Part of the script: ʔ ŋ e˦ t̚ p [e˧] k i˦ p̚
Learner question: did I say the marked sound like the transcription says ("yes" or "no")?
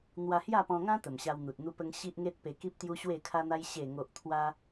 yes